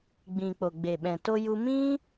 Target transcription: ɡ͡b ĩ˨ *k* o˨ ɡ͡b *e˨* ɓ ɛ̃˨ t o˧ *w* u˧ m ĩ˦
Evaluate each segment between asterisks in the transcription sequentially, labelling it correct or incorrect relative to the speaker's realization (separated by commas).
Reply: incorrect, correct, incorrect